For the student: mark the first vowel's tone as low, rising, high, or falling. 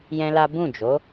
high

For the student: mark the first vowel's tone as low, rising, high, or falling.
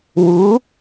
rising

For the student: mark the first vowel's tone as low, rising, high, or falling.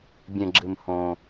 low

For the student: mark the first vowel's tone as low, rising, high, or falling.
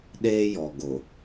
high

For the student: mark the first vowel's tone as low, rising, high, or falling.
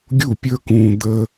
falling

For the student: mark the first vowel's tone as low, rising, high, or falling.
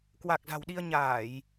low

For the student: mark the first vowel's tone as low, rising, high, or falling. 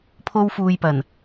high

